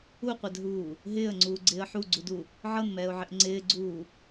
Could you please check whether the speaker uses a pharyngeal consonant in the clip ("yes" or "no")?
yes